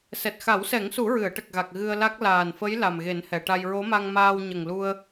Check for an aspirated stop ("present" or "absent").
absent